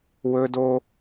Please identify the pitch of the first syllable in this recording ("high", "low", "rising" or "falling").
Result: high